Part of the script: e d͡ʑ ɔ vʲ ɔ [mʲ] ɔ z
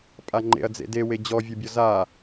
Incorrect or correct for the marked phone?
incorrect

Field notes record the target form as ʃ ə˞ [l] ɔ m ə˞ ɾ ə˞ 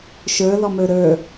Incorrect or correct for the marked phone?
correct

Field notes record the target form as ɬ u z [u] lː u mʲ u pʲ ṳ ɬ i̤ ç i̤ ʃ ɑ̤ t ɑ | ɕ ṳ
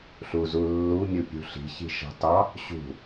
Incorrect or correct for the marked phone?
correct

